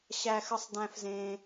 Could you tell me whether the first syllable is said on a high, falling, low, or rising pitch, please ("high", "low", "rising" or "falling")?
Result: high